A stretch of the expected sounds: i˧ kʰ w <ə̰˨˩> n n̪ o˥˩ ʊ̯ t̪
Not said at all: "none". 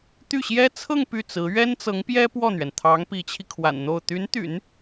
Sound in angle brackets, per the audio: a̰˨˩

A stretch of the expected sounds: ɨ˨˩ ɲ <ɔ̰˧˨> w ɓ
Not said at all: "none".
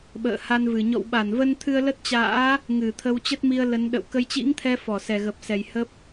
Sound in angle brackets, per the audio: ɔ̰˧˨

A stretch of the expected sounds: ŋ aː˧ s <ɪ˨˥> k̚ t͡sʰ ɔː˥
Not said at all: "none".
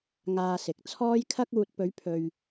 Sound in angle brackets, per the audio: ɪ˨˥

